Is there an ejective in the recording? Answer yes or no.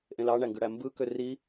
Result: no